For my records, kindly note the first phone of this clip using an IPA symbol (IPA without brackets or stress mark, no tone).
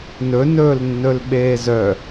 n